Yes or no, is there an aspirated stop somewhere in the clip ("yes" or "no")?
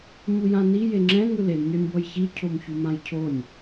yes